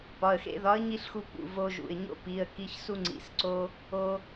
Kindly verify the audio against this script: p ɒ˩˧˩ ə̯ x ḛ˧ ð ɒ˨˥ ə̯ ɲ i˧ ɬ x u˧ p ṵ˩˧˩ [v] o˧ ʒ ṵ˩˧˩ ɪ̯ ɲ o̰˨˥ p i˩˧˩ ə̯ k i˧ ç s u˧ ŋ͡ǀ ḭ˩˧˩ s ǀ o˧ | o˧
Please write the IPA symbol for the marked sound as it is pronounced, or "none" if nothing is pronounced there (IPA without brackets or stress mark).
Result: v